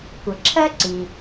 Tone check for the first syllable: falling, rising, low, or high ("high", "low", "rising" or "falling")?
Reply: low